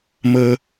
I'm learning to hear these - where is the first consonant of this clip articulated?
lips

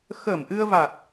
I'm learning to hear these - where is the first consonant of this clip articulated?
velum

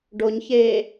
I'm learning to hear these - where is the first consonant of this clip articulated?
retroflex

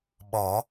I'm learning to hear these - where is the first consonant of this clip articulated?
lips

